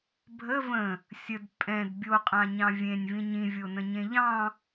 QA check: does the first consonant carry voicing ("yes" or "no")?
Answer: yes